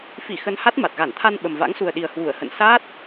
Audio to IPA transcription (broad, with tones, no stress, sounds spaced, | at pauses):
f i˧˩ x ə˧ n h a˦˥ t̚ m a˨˩ t̚ ɣ a˧˩ n t̪ʰ a˧ n ɓ ə˨˩ m v a̰˧˥ ŋ s u˨˩ ə̯ ɗ i˨˩ ə̯ h w u˧˩ ə̯ h ə̰˧˨ n s aː˦˥ t̚